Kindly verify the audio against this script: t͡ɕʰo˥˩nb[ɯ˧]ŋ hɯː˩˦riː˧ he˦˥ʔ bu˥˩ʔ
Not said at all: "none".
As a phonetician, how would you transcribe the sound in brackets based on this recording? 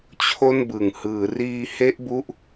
ɯ˨˩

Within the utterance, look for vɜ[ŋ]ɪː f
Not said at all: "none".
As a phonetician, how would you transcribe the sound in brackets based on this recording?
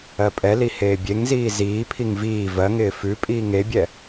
ŋ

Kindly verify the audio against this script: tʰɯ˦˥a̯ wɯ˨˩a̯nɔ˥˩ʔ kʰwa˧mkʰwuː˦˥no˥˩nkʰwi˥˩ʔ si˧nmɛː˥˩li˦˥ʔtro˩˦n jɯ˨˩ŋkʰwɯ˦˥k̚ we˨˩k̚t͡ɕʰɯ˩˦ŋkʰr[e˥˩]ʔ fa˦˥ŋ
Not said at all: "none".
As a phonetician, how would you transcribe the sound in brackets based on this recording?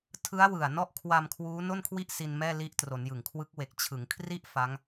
i˥˩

